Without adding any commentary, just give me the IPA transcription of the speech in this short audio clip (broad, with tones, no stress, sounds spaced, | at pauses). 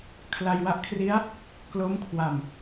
kʰ l a˧ j w a˥˩ ʔ kʰ r i˦˥ a̯ | k l o˦˥ m kʰ w a˨˩ m